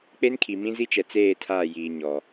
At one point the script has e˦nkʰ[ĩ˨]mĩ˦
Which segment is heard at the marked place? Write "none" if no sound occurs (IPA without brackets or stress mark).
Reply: i˨